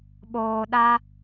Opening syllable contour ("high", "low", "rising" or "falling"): low